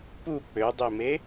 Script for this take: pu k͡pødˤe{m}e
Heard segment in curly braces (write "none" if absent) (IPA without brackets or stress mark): m